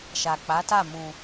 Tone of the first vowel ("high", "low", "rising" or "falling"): low